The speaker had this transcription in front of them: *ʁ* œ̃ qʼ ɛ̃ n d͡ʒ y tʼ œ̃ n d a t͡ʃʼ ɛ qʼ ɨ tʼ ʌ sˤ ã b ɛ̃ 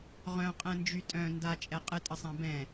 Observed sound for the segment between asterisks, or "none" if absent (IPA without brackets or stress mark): ʁ